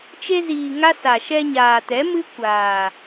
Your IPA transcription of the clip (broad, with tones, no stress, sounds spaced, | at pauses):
t͡ʃ e˧ z iː˨ ŋ a˧ s a˨ ʃ ɛ˧ ɲ aː˨ t ɛ˨˦ m ɨ˦ kʷ aː˨